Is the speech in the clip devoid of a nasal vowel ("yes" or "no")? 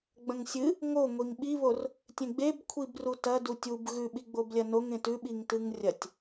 no